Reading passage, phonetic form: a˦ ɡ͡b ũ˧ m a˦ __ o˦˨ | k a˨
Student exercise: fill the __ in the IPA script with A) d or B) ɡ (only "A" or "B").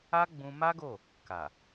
B